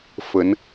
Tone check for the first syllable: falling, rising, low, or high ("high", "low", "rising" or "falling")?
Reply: rising